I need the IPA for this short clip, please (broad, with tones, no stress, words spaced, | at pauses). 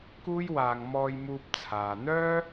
kuː˥jwaː˧ŋ mɔː˧jmuː˧p̚t͡sʰaː˨ n̪œː˥